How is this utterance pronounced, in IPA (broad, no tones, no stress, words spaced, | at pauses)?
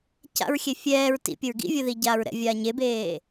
ca̰ɹxʲe fʲɛːɹ tḭpʲəɹ ɡḭvʲəði ɟaːɹɾɛ̰ vʲaːɲebeː